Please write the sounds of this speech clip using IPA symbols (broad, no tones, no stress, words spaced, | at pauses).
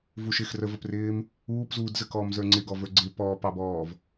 vuʃɪx rəvəprɪːm | uːpzuːdzəkɔːm zə˞ŋ͡ǀɪɡɔ və˞ɡ͡ǀɪ pɔːpɑbɔːv